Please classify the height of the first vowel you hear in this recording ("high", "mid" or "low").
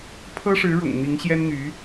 mid